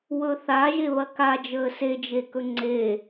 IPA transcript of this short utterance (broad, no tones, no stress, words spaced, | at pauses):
wɵθa ʒeβɐkad͡ʒəː sed͡ʒekɵ ŋ͡ǀe